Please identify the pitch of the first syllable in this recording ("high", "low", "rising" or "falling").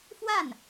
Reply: falling